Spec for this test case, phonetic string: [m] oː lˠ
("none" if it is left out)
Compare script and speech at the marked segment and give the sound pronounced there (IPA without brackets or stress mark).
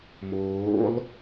m